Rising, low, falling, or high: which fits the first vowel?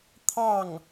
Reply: falling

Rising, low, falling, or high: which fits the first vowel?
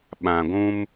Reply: low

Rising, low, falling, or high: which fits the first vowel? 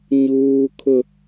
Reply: high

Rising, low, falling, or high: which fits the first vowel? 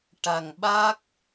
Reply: low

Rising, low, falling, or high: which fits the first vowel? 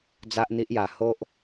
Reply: high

